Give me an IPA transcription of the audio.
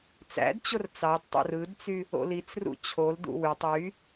t͡s æ̰ d t͡ɕ o r t͡s ɑ d tˤ o̰ r ɯ d t͡s y | o̰ l i t͡s r ṵ t͡ɕʰ o l d ṵ w y tˤ y

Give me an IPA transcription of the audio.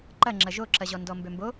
ǃ ɐ ŋ͡ǁ ɐ ʒ o ǁ ɐ ʑ ɔ n d ɔ m b ø m b o

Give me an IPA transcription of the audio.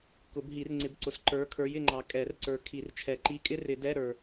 k ʊ˨˩˦ b ɦ i˨˩˦ r ŋ͡ǀ ɪ˨˦ b ǀ ʊ˨ s ǃ ə˞˨˦ kʰ ə˞˨˦ j ɪ˦˨ ŋ͡ǃ ɑ˨ kʼ ɛ˨˩˦ r ǀ ə˞˨ kʰ i˨˩˦ r t͡ʃʰ ɛ˨˩˦ ǃ i˧˥˧ kʼ ɪ˥ r ɪ˨˩˦ d ɛ˧˥˧ ɾ ə˞˨

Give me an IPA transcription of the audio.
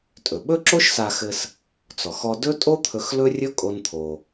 tʼ ɵ˩ ɓ ɵ˥ ǁ o˥ ʃ s a˧ x ɘ˧ s | t͡s ɔ˩ x ɔ˧ d ɵ˥ tʼ o˥ t̪ʰ ɵ˧ x l ɵ˥ rʲ ɵ˥ kʼ o˧ n t̪ʰ o˩

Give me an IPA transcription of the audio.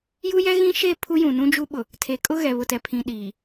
j u˦ j ɛ˦ ɣ ĩ˦ ʃ e˦˨ pʰ u˦ j ũ˨ n ũ˦ d͡ʒ u˦ ɓ ʊ˨ | tʰ e˨ kʼ ʊ˦ ɣ ɛ˨ β ʊ˨ t ɛ˨ pʰ ĩ˨ ɗ iː˨

